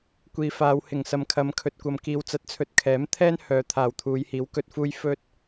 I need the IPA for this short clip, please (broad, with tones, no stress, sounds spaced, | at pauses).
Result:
kʷ iː˨ f aː˨˧ w h ɪ˨˩ ŋ s ɐ˨ m kʰ ɐ˨˧ m kʰ ɵ˨ t̚ kʷ ɐ˨ m k iː˨˧ w t͡s ɐ˨˥ t̚ t͡sʰ ɵ˨ t̚ kʰ ɛː˨˥ m t̪ʰ ɛː˥ n h œː˨˧ t̪ʰ aː˨ w t̪ʰ uː˨˧ j h iː˨˥ w k ɵ˧ t̚ f uː˥ j f ɵ˥ t̚